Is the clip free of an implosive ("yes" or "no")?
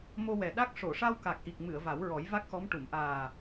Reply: no